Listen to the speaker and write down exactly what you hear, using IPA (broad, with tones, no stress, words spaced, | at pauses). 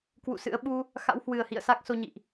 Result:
kwṵ˧˨sɨ̰˧˥ə̯ ɓu˧ | xa̰˧˥whwɨ˨˩ə̯hḭ˧˨ə̯ sa˦˥k̚so˧ ɲḭ˧˨ʔ